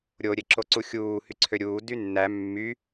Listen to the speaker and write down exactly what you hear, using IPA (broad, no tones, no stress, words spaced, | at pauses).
ɾʲo ɾʲeǁoǀuxʲuː hyǀʰøɾʲuː dynːæ mːy